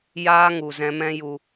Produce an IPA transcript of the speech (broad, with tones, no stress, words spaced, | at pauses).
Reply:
jaː˦ŋu˨zɛ̃˧mɛ̃˦ ju˦